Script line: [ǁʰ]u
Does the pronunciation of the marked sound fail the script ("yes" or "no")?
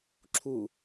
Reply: no